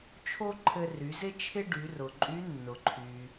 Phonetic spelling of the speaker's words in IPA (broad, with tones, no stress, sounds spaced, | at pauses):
t͡ʃʰ o˥ ǃʰ ɘ˧ r y˩˧ z ɪ˥ t͡ʃʰ ɪ˥ ɖ y˩˧ r ʊ˩ ǃʼ y˧˥ nː ʊ˩ ǃʰ y˩